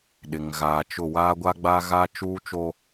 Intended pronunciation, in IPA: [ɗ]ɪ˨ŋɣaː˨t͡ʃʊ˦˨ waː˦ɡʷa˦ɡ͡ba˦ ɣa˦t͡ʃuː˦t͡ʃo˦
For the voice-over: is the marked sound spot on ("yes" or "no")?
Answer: yes